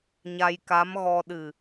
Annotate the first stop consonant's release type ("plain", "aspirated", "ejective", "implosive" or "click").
plain